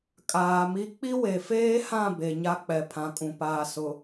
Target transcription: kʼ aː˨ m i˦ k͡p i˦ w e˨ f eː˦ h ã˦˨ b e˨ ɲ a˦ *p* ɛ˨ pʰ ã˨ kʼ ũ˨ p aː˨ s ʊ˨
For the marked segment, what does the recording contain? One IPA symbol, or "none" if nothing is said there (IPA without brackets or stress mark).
k͡p